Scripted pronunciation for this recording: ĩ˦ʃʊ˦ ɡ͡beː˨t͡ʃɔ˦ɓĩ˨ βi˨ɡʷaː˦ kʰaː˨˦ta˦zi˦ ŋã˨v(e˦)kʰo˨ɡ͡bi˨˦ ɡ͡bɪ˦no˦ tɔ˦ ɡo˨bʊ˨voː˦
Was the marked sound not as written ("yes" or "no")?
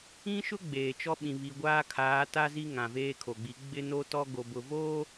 yes